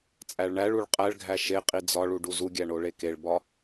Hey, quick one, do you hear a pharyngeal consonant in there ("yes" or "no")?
no